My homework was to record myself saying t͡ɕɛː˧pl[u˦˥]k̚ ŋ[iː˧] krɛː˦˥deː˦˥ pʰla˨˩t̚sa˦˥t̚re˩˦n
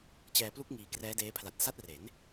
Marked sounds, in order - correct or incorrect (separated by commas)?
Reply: correct, correct